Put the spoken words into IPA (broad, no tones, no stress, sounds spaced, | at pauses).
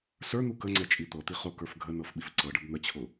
s ə˞ n̪ u k ə ŋ͡ǀ ɛ t͡ʃʼ i t̪ ɤ t̪ i χ ʊ k ə˞ f ɡʱ ə n ɤ f ɓ i f ǀ ɤ ɖ ə b n̪ ə t͡ɕʰ ʊ